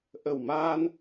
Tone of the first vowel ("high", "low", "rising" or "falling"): low